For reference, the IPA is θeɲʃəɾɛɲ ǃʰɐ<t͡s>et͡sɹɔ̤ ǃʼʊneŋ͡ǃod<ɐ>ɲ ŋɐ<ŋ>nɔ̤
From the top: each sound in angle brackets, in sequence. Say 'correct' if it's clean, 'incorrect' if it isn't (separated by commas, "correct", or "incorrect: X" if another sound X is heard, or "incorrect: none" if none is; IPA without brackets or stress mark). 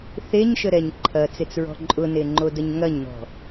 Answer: correct, incorrect: ə, incorrect: ɲ